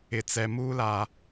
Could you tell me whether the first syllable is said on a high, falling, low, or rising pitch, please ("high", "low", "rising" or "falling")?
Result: low